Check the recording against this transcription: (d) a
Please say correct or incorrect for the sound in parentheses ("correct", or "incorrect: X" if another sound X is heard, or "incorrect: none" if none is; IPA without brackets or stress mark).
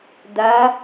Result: correct